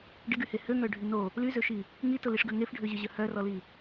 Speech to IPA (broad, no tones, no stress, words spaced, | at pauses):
ɖɪɡyhe høŋœɖʱy no | lyzøʃi | ŋitʊliʂɡø ŋefɖʱøʑʏʑœ hœrɔli